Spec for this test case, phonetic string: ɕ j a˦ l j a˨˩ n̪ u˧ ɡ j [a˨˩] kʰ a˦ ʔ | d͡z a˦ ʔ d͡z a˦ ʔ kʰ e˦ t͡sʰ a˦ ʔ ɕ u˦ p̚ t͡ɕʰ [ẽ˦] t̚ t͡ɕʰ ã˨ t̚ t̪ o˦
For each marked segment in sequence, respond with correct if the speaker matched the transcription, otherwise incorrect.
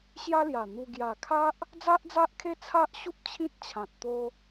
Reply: correct, incorrect: ĩ˦

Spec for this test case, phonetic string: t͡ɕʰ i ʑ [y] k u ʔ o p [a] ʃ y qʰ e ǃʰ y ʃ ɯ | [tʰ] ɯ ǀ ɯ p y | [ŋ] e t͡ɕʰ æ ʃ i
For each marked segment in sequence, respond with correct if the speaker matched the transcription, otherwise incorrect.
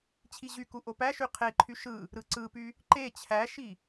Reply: correct, incorrect: æ, incorrect: ɾ, incorrect: ǃ

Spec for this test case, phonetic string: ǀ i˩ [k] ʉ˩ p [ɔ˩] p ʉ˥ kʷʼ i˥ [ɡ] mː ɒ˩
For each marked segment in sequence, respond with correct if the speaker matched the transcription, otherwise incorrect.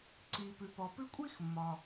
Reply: incorrect: p, correct, incorrect: x

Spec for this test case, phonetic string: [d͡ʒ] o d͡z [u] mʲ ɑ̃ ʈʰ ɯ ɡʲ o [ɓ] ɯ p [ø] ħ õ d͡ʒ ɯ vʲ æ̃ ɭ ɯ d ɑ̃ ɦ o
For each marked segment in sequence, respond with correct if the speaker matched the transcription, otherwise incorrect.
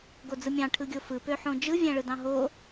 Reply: incorrect: ɡ, incorrect: ɯ, incorrect: f, correct

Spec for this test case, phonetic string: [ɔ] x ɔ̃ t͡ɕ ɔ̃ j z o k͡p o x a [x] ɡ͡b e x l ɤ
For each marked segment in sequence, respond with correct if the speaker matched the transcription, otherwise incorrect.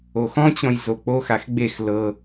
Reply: incorrect: o, correct

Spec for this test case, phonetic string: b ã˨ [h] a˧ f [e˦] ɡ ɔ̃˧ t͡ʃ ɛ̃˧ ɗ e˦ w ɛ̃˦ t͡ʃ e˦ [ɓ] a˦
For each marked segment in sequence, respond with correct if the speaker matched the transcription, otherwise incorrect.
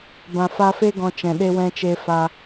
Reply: incorrect: f, correct, incorrect: f

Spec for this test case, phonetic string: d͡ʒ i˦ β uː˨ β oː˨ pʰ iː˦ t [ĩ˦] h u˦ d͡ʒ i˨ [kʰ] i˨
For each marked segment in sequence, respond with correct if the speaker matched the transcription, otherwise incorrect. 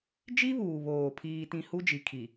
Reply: correct, correct

